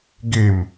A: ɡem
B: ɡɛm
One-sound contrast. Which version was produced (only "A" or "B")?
A